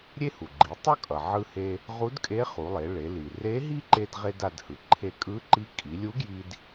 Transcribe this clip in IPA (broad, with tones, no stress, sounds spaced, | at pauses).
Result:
ɾʲ e˥ h u˩ ɡ͡ǃ i˩˧ tˤ ʌ˥ kʼ ʌ˩ ʕ ɯ˧ h e˧ | ʁ u˧˥ d kʼ e˧˥ χ u˩˧ lˠ e˩˧ ɭ e˩˧ l i˩ r e˧˥ ɦ i˥ ǃ e˧ d ʁ e˧ d a˧ d h ɯ˩ ǃʰ e˧ kʼ ɯ˧˥ ǃ i˧˥ kʼ i˩˧ lʲ u˧˥ ɡ j i˧ d